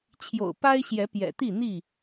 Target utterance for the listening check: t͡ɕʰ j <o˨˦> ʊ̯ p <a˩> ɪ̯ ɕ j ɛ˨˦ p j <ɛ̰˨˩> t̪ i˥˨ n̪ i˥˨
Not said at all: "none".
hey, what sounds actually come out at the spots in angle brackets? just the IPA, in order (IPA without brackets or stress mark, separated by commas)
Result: o̰˨˩, a˦, ɛ̰˨˩